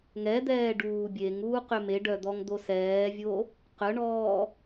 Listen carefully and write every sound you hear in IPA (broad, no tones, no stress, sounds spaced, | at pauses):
ŋ ɛ d̪ ɛː ɖ uː bʲ e ŋ uː q ø m e ɖ œ d̪ ɔ ŋ d̪ o s ɛː vʲ o | q œ ɳ ɔː